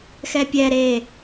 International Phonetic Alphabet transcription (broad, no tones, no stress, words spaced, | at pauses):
xɛpʲɛ ɾe